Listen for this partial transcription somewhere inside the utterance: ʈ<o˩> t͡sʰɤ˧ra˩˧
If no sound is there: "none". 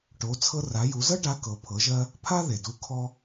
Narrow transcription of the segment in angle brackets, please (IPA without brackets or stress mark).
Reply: o˩˧